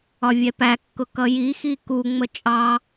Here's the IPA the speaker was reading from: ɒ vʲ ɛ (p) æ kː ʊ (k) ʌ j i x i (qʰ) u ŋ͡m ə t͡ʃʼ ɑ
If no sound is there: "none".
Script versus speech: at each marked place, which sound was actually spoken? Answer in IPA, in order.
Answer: p, k, k

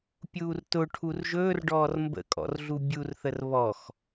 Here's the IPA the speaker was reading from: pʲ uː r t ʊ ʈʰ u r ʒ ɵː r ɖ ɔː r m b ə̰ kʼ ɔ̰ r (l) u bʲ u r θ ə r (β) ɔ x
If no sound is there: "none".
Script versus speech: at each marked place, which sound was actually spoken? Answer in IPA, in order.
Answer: ɮ, β

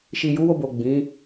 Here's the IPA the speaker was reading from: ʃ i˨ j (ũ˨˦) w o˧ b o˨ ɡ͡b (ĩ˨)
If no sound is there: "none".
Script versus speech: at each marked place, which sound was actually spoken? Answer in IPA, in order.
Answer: u˨˦, ĩ˨˦

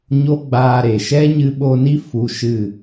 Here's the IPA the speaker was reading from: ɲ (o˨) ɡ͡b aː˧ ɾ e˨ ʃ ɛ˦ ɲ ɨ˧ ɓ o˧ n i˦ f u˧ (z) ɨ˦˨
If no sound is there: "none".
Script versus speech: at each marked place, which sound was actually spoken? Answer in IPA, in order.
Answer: o˦, ʃ

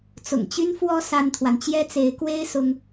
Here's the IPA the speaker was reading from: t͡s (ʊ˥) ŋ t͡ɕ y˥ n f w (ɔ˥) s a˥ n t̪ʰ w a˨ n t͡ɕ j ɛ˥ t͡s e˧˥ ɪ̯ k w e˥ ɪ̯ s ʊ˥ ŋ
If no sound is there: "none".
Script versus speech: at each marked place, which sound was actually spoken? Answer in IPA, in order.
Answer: ʊ̰˨˩, ɔ˥

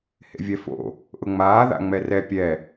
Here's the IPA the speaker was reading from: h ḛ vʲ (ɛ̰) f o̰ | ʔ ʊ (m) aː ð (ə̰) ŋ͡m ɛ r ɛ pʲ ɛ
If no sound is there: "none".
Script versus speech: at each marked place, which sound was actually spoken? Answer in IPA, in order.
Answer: ɛ, ŋ͡m, a̰

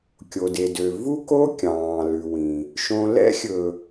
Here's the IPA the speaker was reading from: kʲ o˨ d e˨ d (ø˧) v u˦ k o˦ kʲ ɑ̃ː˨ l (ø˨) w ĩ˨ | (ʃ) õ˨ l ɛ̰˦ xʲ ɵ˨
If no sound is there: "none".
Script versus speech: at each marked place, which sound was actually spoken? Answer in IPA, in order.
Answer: ø˨, ʉ˨, ʃ

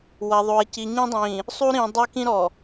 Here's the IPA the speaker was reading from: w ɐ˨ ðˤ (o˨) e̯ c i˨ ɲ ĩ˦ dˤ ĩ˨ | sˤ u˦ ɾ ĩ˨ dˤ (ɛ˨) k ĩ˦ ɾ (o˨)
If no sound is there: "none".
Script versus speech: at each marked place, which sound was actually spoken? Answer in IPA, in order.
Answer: o˨, ɛ˦, ɔ˨

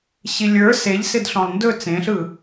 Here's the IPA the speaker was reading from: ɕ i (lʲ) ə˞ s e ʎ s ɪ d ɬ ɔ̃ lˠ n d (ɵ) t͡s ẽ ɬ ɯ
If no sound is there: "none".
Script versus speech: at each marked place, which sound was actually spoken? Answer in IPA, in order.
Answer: lʲ, ɵ

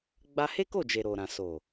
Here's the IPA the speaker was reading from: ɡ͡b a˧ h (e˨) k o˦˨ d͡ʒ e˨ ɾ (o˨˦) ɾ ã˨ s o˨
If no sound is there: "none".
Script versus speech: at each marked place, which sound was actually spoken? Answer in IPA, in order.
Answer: e˦, o˨

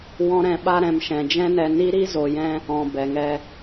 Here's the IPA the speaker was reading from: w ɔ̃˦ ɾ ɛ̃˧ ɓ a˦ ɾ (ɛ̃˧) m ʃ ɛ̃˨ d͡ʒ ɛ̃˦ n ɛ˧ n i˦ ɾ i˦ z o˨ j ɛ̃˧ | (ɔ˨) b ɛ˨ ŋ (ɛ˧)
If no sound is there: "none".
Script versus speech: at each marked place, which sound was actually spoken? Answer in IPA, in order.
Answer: ɛ̃˧, ɔ̃˨, ɛ˧

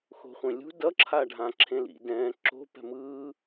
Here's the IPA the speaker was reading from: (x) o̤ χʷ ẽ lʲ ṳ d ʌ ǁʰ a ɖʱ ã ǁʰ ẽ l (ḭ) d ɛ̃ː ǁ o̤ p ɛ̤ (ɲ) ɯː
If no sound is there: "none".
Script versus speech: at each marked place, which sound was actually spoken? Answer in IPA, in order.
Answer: x, ḭ, m

